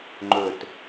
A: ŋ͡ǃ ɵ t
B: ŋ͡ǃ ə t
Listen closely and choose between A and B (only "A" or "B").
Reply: A